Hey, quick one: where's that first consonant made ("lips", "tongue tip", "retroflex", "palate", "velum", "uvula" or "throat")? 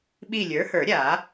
lips